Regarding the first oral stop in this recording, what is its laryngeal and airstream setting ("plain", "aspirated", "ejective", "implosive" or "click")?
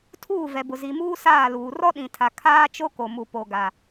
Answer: aspirated